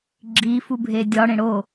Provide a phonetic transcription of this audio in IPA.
ɡ͡ǁ i f u bʱ e dʲ ɒ ɽ ẽ ɽ o

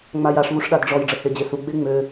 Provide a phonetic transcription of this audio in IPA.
ŋ͡m a j a ʂ v u ʂ ɗ a d ɖ͡ʐ ɔ j ɖ͡ʐ ə h e d͡ʑ e s u ɡ͡b e ŋ͡m ø

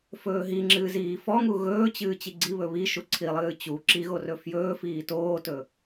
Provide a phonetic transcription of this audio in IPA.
f ɵː ɦ i ŋ͡ǁ ɨː z iː f ɔ ŋ u ɣ ɵː t͡ɕ ɨː t͡ɕ i ɡ͡ǀ i β ɵ β i ʃ u ǀʰ i lˠ ɨː t͡ɕ u ǁ i ɣ o r ɵ f j ɵː f iː t oː t ɵ

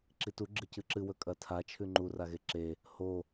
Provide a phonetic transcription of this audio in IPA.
ǁ i t u ɡ͡ǁ ɨ c ɨ ǁ ɨ w ɵ kʼ ɐ tʰ a t͡ʃʰ ʉ ŋ͡ǃ u r a ɣ e ǁ e | h o

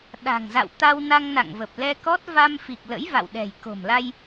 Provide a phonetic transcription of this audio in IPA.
ɗ a̤˨˩ ŋ z a̰˧˨ w t̪ a˧ w n a˧ ŋ n a̰˧˨ ŋ v ə˨˩ p̚ l ɛ˧ k ɔ˦˥ t̚ v a˧ m f i˨˩ k̚ l ə̰˧˥ j v a̰˧˨ w ɗ ɛ̤˨˩ j k o̤˨˩ m l a˧ j

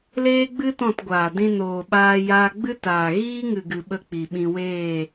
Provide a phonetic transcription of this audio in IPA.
l eː˦ ɡ͡b ɨ˦ t ɔ̃˦˨ t ɡʷ aː˨ d ĩ˧ n oː˨ ɓ aː˧ j aː˧ ɡ͡b ɨ˦ t aː˨ ɣ iː˦ ŋ ɨ˨ ɡ ɨ˨ ɓ ə˦˨ k͡p i˨ ɓ ĩ˧ w eː˦˨

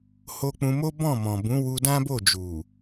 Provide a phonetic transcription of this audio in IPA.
h o˧ k͡p ũ˧ m o˦ b ɔ̃˦˨ m ɔ̃˨ b ũ˨˦ w u˧ d ã˦ b o˦˨ d͡ʒ u˨

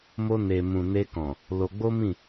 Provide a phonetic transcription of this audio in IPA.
m o˧ n e˨ m ũ˨ n e˧ k ɔ̃˨ | l o˧ ɡ͡b o˦ m ĩ˦˨

